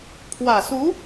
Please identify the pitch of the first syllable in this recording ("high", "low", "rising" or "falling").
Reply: low